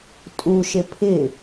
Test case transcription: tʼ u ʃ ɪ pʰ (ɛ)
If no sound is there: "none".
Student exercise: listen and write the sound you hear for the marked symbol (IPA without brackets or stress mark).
ɪ